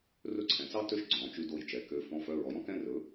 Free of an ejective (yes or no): yes